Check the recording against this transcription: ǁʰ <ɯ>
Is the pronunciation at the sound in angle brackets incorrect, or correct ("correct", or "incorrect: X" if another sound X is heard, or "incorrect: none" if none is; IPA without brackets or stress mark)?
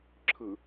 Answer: correct